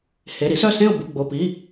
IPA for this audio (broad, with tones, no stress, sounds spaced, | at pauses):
h e˩˧˩ ɾ i˨˥ s œ˥˨ s ẽ˥˨ ʊ̯ b u˩˧˩ ɡ͡b o˩˧˩ p i˩˧˩